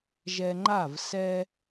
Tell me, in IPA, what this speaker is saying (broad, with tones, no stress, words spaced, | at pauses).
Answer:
ʒɛ˧ŋ͡ǃa˦˨v sɛ˦